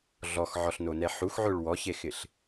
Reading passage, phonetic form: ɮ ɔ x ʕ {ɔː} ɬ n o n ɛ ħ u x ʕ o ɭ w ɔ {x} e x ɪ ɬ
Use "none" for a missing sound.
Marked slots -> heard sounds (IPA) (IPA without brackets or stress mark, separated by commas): ɔ, ç